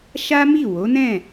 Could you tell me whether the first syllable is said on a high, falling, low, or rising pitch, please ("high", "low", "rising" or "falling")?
high